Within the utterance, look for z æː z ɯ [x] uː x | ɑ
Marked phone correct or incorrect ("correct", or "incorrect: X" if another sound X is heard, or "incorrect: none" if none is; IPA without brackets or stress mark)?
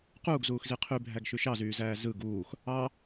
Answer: incorrect: ɡ